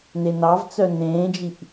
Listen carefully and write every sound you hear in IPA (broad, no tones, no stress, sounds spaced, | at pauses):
n e n ɑ v t͡s œ n ẽː d͡ʒ i ʔ